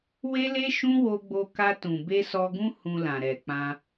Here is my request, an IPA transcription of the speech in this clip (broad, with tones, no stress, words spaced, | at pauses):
we˦le˦ ʃũ˦wo˧ɡ͡bo˧ ka˧ tũ˨ be˧ sɔ˧ɡũ˦ hũ˧lã˨ ɾɛ˨k͡pã˧